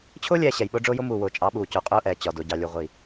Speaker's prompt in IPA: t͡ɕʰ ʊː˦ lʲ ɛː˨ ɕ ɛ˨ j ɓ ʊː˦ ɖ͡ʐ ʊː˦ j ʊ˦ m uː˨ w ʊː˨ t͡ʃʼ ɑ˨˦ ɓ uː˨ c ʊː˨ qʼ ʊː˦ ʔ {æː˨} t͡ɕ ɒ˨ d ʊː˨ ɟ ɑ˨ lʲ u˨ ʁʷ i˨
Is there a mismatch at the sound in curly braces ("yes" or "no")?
yes